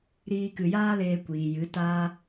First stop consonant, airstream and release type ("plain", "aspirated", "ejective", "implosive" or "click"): plain